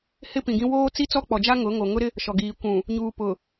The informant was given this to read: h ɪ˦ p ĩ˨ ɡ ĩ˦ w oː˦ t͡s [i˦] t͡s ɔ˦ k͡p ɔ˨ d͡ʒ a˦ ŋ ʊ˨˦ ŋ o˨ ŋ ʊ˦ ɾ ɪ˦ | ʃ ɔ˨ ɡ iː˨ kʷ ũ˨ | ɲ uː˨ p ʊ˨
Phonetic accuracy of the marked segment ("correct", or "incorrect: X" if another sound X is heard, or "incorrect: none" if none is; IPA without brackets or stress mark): correct